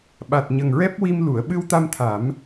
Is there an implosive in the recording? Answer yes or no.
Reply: yes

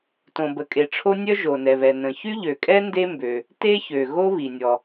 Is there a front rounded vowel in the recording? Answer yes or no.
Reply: yes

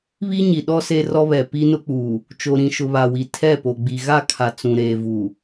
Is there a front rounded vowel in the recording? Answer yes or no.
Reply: no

